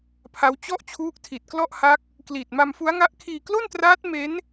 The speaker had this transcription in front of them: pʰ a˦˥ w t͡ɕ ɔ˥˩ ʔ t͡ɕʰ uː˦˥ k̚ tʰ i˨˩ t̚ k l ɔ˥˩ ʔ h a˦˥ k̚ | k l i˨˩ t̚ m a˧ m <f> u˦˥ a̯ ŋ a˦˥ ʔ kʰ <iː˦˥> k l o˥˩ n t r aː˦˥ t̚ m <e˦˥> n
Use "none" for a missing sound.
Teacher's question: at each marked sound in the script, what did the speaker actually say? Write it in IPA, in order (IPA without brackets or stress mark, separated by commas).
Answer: f, iː˧, e˦˥